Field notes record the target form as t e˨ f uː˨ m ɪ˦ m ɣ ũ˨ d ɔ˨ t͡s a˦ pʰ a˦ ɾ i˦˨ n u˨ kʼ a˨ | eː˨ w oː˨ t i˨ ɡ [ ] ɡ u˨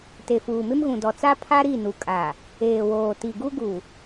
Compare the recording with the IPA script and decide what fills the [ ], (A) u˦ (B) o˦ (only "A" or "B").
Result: A